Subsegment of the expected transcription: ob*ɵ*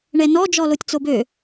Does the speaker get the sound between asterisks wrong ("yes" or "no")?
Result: yes